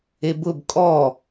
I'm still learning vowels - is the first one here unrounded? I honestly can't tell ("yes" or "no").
yes